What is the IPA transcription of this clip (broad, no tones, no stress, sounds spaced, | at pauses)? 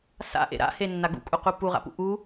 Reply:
s a̰ ʔ ḛ ɾ a̰ h e nː a ɡ ṵ kʼ u q u p u ʁ a̰ p ṵ ʔ u